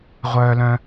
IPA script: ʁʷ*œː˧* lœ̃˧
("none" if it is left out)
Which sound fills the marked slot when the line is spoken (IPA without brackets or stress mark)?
œː˧